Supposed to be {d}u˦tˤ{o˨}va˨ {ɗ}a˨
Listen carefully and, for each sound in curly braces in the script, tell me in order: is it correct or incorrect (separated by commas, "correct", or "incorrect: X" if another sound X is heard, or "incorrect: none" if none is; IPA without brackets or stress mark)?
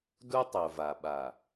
correct, correct, incorrect: ɓ